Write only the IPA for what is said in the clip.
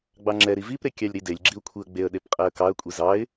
ɡ͡b ɑ ŋ͡ǁ ɛ ɾ i v i p ɾ e kʲ ɑ lʲ ɾ i d e lʲ ɡ͡ǁ i ʊ̯ kʷʰ i ə̯ ɡ͡b e ə̯ ɗ e p qʼ ɛ ə̯ k ɑ ə̯ kʷʼ i z ɑ ɪ̯

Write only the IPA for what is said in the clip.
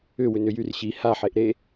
ʏ w ʏ n ʏ j y r ɕ i h a ħ e ʔ ɾ e

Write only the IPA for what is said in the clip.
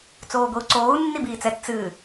t͡s oː ɡʷ i u̯ ǀ oː u̯ nː i b iː t͡s ɛ t t͡s ɨ

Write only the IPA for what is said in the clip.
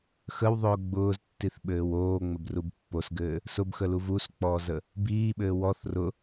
x ə w ðˤ ʊː ɡ͡b ʊː z tː i θ ɓ ɘː w oː ŋ͡m ə b r u b pː o s ɡ ɘː | s ʊ b x ə l u v u s k͡p ɔː z ə | b iː ɓ ɘː w ɔ θ r ʊ

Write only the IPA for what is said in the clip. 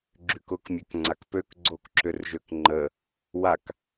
ɡ͡ǁ y k ʊ k mʲ ø k ŋ͡ǀ a k p ø k ɡ͡ǀ o k ǁ ʏ r ʒ ø k ŋ͡ǃ ə | w a k

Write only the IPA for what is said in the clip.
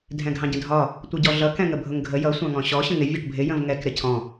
dʱ ɛ̃ ɡʱ ɑ̃ ɟ ə̃ dʱ ɒ | tʷ ʌ ɟ ɔ ɮ ʌ k ɛ̃ ŋ ə bʱ ʊ ŋ ɡʱ ə j ʌ sʷ ɑ̃ ŋ ɔ̃ ɕ ɔ ɕ ə̃ ŋ ɪ vʲ ʌ ʈ bʱ ɪ j ə̃ v ŋ ɛ k ɾ ɪ cʰ ɔ̃

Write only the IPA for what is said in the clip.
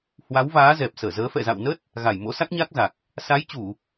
h w a˨˦ w v aː˨˦ z ɛ˨˩ p̚ s əː˧˩ z əː˨˦ f ɛ̰˧˨ z a̰˧˨ w n ə˦˥ t̚ | ɣ a˧˩ j m o̰˧˥ s a˦˥ k̚ ɲ a˦˥ k̚ z a˨˩ k̚ | s a˨˦ j t͡ɕ u˧˩˨

